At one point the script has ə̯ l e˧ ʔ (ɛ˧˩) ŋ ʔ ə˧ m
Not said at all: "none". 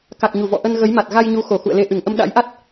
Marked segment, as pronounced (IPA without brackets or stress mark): ɨ˧˩